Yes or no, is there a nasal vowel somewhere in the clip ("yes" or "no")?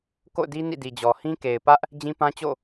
yes